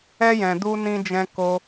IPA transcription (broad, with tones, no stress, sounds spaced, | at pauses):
ɛ˧ j ɛ̃˨ d u˧ n ĩ˧ d͡ʒ ɛ̃˧ k o˧